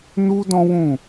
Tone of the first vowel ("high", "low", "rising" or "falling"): high